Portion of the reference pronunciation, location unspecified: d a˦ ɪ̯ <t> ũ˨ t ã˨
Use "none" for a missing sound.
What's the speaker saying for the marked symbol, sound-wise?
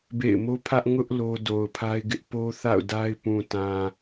p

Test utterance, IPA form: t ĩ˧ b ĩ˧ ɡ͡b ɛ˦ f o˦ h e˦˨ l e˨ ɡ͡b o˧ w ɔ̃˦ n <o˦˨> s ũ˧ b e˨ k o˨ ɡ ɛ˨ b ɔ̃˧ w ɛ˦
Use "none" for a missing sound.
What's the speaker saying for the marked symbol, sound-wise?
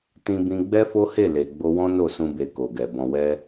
o˦˨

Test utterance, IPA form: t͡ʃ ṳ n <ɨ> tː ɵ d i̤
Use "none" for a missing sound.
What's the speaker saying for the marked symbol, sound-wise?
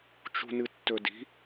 ɨ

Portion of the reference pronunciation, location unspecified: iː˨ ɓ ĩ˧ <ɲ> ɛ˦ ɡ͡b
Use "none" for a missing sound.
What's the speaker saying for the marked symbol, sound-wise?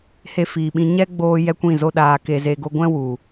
ɲ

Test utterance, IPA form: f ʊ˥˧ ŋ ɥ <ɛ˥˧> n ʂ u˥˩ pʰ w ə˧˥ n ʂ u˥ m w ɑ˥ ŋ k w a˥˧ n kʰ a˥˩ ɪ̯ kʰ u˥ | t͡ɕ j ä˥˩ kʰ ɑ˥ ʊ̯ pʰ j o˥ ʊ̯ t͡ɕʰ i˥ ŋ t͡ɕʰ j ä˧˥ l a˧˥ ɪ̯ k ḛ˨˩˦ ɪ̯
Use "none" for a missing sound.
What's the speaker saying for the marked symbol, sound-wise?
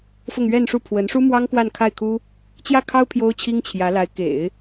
ɛ˥˧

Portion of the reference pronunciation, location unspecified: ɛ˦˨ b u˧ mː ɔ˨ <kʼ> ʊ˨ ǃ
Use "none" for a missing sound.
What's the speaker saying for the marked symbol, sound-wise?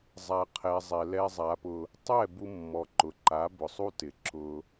ǃ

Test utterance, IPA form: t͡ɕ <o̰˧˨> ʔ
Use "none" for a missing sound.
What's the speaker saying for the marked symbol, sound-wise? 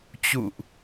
ṵ˧˨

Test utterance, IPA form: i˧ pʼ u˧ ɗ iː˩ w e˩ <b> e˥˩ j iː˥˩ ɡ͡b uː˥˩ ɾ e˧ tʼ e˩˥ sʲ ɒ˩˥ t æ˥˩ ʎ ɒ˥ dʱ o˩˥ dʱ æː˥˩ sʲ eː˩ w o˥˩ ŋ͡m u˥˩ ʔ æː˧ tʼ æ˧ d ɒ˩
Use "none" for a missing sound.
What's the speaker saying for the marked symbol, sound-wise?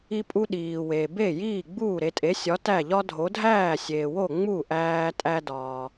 b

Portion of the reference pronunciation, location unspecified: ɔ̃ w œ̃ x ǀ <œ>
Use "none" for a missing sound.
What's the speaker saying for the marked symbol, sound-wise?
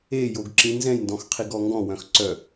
œ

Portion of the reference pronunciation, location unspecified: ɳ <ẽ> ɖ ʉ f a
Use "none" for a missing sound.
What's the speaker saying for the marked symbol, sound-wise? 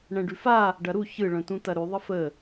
ɛ̃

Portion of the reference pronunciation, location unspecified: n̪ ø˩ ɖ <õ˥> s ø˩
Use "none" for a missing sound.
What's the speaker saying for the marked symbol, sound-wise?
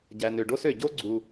o˥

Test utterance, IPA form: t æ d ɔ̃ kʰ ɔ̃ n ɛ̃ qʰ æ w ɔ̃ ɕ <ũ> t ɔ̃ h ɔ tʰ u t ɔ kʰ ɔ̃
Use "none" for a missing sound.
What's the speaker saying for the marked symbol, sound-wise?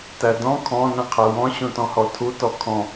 ũ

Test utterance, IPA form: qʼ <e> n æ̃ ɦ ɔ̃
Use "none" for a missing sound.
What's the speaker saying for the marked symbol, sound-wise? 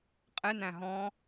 e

